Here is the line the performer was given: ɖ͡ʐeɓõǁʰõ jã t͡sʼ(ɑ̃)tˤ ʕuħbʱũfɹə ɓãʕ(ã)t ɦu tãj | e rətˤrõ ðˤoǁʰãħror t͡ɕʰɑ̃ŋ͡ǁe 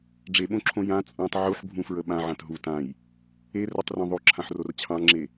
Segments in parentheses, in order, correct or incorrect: correct, correct

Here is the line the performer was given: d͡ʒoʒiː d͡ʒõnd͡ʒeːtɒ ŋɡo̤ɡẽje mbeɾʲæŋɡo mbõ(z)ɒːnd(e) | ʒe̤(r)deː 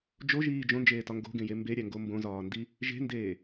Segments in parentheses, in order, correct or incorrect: correct, incorrect, incorrect

